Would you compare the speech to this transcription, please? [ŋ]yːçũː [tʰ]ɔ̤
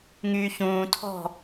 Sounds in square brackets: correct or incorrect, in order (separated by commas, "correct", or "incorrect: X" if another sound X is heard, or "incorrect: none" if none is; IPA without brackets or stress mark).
correct, correct